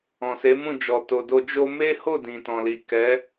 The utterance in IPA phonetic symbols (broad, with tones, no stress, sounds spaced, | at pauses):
ɔ̃˨ s e˨˦ m ũ˦˨ d͡ʒ ɔ˨ t o˨ d o˧ d͡ʒ o˧ m e˦ h o˦˨ d ĩ˨ t ɔ̃˨ l i˨ k ɛ˨˦